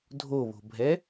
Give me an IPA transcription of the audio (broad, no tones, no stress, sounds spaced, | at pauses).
dʱ o β o̤ bʱ ɛ